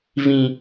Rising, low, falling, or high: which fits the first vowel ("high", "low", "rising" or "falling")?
high